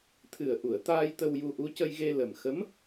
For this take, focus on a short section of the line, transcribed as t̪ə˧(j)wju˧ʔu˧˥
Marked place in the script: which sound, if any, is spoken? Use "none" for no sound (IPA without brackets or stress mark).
none